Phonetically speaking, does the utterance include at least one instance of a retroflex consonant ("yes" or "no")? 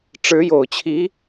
yes